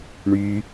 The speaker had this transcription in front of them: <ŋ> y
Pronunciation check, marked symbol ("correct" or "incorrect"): incorrect